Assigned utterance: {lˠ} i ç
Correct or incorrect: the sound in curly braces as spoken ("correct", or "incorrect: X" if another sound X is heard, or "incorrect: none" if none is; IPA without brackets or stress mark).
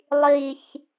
correct